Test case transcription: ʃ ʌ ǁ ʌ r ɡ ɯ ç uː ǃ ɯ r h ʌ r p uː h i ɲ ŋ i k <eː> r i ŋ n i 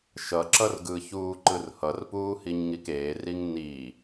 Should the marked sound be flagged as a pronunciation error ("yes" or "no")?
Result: no